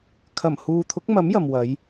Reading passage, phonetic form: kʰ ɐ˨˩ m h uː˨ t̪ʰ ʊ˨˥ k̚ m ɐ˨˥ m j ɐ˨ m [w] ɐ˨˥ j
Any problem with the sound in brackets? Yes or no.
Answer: no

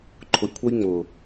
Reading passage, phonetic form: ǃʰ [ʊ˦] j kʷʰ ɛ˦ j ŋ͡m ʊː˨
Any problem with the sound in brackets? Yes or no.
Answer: yes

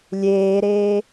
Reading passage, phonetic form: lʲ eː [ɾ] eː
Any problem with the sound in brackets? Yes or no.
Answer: no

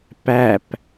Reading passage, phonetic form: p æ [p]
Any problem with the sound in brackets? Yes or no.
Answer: no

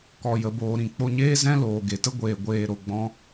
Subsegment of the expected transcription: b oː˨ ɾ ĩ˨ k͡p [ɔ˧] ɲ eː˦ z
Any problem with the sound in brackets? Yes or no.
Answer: yes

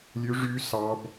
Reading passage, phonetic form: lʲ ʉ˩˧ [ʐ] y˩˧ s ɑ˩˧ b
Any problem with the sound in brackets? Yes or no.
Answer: no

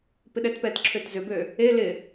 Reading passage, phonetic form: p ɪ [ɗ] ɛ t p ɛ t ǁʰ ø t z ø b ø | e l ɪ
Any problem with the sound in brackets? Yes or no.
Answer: no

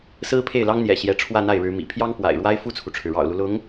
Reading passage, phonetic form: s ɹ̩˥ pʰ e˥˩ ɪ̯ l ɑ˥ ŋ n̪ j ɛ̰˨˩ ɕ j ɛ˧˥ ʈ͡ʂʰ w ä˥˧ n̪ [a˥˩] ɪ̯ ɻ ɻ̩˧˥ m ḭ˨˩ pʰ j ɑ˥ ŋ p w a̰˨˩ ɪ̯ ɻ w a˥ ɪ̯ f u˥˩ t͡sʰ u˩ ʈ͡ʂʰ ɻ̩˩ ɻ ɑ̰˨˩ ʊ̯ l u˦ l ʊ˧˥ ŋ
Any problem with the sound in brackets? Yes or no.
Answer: no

